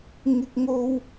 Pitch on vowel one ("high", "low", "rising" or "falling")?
high